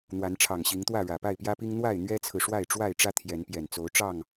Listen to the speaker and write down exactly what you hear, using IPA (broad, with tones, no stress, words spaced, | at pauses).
n̪wa˨˦nʈ͡ʂʰɑ˨˩ŋɕi˨˦ŋt̪wä˥˨ ɻä˨˩pa˥˨ɪ̯pjä˦pi˦ŋ n̪wa˥˨ɪ̯n̪ɥɛ˦t͡sʰɹ̩˨ ʂwa˥˨ɪ̯ʈ͡ʂwa˥˨ɪ̯ʈ͡ʂä˦ t̪ʰjɛ˨˦npjɛ˨˩n t͡so˨˦ʊ̯ ʈ͡ʂɑ˥˨ŋ